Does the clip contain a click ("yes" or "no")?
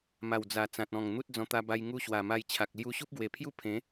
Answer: no